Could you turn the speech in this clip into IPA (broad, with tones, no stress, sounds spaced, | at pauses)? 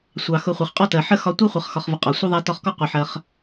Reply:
sʷ ɑ˩ x ʊ˨ χʷ ə˩ χ qʼ ɔ˥ t ɜ˩ ħ ə˥ x ɒ˦ tʷ i˥ χʷ ʌ˨ χ x ɒ˨ χ v ə˨ qʼ ɒ˩ sʷ ə˥ ðˤ æ˦ t ɒ˦ χ k ɔ˥ qʷ ə˨ ħ ɜ˨ χ